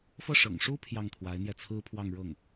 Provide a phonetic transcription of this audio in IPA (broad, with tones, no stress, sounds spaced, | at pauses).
f ɤ˥˩ ʂ ɤ̰˨˩ ŋ ʂ u˥ pʰ j ɑ˥˩ ŋ t̪ʰ w a˧˥ ɪ̯ n̪ j ɛ˥˩ t͡sʰ ɹ̩˥ pʰ w ɑ˥˧ ŋ ɻ ɤ˥˩ ŋ